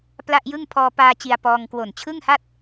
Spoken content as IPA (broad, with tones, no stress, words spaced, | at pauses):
pla˥˩ʔjɯ˥˩ŋ pʰɔː˧paː˧ t͡ɕi˧a̯pɔː˧ŋ kwo˨˩nt͡ɕʰɯ˥˩ŋha˥˩t̚